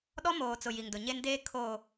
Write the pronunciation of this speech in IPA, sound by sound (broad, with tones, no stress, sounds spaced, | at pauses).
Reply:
ɗ ɔ˦ m oː˨ t͡s ʊ˨ j i˨ ŋ d ʊ˨ ɲ e˦ n d eː˦ kʰ oː˨